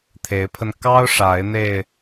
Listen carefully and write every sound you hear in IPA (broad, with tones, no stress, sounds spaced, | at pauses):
t̪ʰ e˨˦ ɪ̯ pʰ ə˧ n k ɑ˦ ʊ̯ ʂ a˨˦ ɪ̯ n̪ e˧ ɪ̯